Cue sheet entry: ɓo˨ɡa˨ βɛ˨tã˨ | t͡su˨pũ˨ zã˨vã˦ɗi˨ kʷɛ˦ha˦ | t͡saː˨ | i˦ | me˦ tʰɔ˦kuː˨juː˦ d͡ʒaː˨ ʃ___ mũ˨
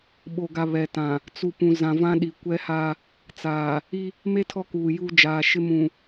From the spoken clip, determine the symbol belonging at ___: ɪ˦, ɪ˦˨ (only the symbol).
ɪ˦